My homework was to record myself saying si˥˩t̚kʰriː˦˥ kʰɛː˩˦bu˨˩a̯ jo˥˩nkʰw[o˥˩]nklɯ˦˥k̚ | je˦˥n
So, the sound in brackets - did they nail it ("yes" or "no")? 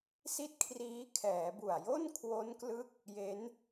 no